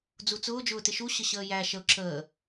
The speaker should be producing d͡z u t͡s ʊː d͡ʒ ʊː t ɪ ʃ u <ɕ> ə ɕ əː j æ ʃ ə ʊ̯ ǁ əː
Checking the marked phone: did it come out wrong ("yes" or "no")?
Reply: no